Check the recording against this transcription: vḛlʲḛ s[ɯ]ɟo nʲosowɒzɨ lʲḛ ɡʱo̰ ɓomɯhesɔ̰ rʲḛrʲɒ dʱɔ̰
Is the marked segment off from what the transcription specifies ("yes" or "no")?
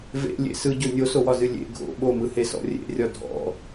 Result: no